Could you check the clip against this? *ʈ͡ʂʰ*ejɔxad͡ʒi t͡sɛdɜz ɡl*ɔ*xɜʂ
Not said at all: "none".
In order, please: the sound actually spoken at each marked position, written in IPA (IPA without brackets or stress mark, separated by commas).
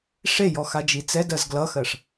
ʂ, ʌ